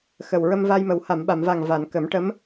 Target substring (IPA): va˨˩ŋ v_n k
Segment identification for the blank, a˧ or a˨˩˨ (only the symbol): a˨˩˨